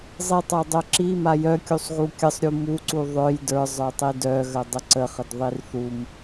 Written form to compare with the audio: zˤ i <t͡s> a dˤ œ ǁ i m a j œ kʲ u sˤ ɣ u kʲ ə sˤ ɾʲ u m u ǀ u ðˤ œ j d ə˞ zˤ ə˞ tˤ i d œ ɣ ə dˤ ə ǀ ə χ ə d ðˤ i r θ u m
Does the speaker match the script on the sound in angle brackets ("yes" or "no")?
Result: no